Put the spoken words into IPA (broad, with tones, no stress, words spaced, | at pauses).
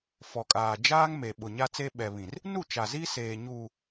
fɔ˨kʼaː˨ d͡ʒaː˦ŋme˨ ɓʊ˨ɲa˦t͡se˦ ɓɛ˨βĩ˨r | nu˦˨t͡ʃa˨ zi˦seː˨ɲuː˨